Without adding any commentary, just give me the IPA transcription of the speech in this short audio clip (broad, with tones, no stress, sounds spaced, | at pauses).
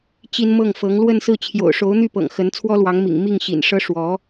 t͡ɕ i˥ n m ɤ˥˩ ŋ f ɤ˧˥ ŋ l w ə˥˧ n s ɹ̩˥˩ t͡ɕʰ j o̰˨˩ ʊ̯ ʂ o˧˥ ʊ̯ n̪ y˥˩ p ɤ̰˨˩ ŋ x ə˧˥ n t͡sʰ w ɔ˥ l w ɑ˧˥ ŋ m ḭ˨˩ ŋ m i˥˩ ŋ ɕ ḭ˨˩ n ʂ ɤ˥ ʂ w ɔ˧˥